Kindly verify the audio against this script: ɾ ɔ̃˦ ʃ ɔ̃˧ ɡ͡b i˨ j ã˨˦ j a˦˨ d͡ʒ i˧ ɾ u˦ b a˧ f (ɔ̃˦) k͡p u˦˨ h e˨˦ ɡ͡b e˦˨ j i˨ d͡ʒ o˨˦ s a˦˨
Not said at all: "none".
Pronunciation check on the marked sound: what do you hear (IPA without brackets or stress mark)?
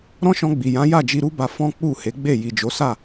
ɔ̃˦